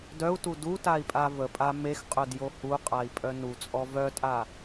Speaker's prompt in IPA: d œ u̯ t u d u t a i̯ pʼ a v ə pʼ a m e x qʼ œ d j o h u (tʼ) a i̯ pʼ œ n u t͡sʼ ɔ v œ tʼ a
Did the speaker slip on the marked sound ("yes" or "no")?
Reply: yes